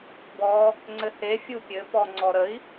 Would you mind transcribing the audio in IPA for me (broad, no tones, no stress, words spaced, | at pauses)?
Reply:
bɔ | ŋ͡ǀɘhe fʲupʲɘ pɔŋ͡ǀɔɾəi̯